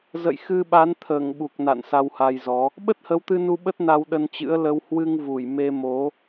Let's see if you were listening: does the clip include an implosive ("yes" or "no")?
yes